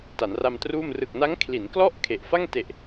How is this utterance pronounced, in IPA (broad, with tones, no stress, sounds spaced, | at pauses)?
t a˩˦ n r a˧ m t r uː˥˩ m r ɯ˨˩ k̚ n a˦˥ ŋ kʰ l i˩˦ n k l ɔ˥˩ ʔ kʰ e˨˩ ʔ f a˥˩ ŋ t e˨˩ ʔ